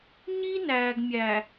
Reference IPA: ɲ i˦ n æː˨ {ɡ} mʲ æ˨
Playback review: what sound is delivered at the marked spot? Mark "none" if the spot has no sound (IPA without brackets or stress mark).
ɡ